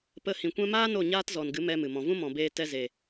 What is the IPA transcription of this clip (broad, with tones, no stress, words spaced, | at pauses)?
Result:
pə˧hĩ˨ kʷɛ̃˧maː˦ no˦˨ɲaː˦tzɔ˨nɡɨ˨˦ mɛ˦mɨ˨mɔ̃˧ vũ˦mɔ̃˨beː˧ tɛ˧ze˨